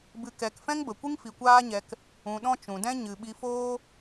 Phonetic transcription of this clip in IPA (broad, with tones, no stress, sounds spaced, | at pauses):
b ɨ˨ k ɛ˨ k f ɛ̃˦ ŋ b ə˨ kʷ ɨ˦ ŋ f i˨ kʷ aː˦ ɲ ɛ˧ k | ũ˨ ɗ ɔ̃˧ t͡ʃ ũ˨ d ɛ̃˦ ɲ ɨ˨ ɓ i˧ f oː˦